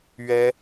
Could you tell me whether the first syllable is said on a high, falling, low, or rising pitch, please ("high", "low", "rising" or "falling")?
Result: high